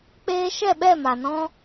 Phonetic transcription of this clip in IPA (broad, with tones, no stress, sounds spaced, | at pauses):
k͡p eː˦ ʃ ɛ˦˨ ɓ ɛ˦˨ m a˨ n ɔ̃˦